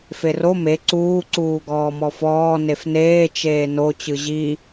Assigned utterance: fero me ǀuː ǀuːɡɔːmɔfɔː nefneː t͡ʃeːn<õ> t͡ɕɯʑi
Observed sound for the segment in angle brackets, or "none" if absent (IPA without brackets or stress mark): o